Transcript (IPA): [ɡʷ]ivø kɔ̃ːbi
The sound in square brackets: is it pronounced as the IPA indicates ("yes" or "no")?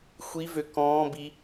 no